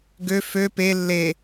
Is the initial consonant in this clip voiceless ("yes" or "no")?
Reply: no